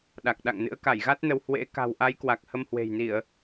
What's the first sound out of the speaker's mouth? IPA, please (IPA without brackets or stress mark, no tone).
ɗ